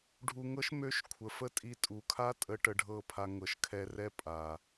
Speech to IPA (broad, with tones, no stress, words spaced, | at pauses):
ɖʱu˧ŋɤ˦ʃ mø˦ʃ kʷʰə˨fə˦tʼi˧ tʼu˨kʰa˦tʼə˧ ʈə˧ɖʱɤ˦˨pʰa˧ ŋɤ˨ʃkʰɛ˧rɛ˦ pʼa˨